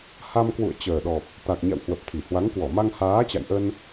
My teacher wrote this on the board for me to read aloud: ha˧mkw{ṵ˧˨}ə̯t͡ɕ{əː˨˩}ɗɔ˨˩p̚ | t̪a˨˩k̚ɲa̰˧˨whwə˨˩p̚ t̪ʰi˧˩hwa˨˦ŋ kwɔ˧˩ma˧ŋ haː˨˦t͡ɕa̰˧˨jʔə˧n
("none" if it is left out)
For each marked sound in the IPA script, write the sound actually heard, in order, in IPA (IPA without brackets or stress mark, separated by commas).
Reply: ṵ˧˨, əː˨˩